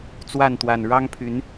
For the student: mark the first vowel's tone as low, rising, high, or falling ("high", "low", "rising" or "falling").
falling